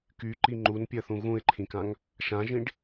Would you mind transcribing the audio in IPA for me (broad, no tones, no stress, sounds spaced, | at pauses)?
k y ǃ i ŋ͡ǃ u n pʲ ɜ θ ũ ɣ ũ ɪ̯ ǃʰ ĩ k ã ŋ | ʃ ã ʒ ĩ ɖ